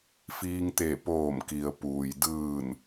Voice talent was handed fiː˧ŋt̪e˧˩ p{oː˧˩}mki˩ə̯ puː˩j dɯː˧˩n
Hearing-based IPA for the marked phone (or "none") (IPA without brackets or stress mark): oː˧˩